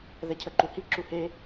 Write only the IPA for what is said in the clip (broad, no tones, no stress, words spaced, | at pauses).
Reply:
ðɛcʰəǃuhi ǁuhe